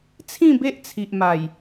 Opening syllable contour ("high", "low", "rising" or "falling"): falling